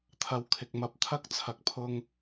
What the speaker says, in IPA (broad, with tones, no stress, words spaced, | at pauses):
t̪ʰɐ˧wkʰɪ˨k̚ mɐ˧p̚t̪ʰɐ˥k̚ t͡sʰɐ˨k̚pʰʊ˧ŋ